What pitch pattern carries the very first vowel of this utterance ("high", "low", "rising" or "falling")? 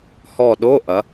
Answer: falling